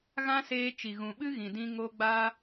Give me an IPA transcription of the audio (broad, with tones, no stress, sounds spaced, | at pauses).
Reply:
ɣ ã˦ s eː˧ t͡ʃ i˨ ɣ ũ˨ ɓ ɨ˦ ɣ ĩ˨ d ĩ˧ ŋ o˧ ɡ͡b aː˦